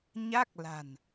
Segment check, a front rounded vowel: absent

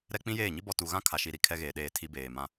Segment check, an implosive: present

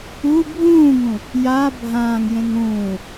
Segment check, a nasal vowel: present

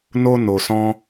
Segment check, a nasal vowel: present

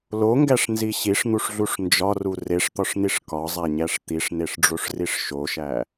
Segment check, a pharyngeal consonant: absent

